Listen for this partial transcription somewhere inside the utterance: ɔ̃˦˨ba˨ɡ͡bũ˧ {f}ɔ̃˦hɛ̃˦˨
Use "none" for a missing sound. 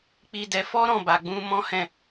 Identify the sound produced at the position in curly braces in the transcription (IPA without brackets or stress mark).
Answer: m